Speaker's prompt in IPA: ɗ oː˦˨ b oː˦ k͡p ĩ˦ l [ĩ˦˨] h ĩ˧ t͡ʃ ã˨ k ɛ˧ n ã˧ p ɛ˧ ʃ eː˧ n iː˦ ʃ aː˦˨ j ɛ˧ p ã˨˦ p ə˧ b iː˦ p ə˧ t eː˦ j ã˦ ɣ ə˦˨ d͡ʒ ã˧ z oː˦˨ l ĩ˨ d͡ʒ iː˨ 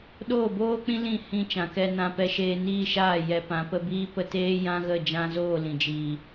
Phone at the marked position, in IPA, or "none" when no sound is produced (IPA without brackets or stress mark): ĩ˦˨